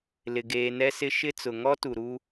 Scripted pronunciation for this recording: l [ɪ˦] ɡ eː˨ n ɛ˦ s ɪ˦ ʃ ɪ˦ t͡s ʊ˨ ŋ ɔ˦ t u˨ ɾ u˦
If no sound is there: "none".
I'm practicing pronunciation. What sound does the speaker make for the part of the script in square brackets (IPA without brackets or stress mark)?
ɪ˨